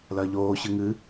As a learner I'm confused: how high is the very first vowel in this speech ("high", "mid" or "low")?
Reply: low